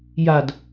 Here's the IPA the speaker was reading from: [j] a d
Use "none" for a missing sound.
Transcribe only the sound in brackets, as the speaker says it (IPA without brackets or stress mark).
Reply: j